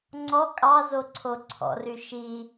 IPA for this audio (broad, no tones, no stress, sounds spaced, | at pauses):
ŋ͡ǀ ɔ kʼ ɑ z o ǀʰ o ǀʰ ɔ̰ r y ʃ i